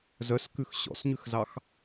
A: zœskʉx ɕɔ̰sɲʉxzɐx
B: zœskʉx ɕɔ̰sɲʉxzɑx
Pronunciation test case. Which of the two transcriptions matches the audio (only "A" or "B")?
B